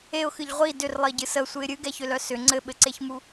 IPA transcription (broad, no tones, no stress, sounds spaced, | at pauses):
e ʊ̯ x ɨ ʎ ʁʷ i d ʏ r lˠ i ɟ ɨ s ə sʷ ɨ ɪ̯ ɾʲ ɨ ɡ ɛ ç ʏ l œ s ʏ ŋ͡ǀ ɘ ɓ ɘ ǀ e ç m u